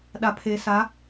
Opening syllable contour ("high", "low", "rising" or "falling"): low